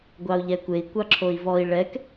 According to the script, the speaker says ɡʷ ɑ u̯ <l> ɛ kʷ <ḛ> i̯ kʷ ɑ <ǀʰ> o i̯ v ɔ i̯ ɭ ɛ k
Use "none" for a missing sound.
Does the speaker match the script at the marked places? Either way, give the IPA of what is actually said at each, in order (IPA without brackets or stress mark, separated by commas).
ʎ, e, ǁʰ